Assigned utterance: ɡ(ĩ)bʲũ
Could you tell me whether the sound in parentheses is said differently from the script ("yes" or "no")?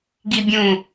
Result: yes